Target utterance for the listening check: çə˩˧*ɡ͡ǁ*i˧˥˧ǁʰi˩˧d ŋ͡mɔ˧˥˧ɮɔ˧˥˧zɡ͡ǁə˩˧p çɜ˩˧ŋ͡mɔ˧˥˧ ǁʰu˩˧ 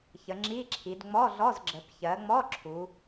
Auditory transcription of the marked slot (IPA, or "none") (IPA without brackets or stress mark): ŋ͡ǁ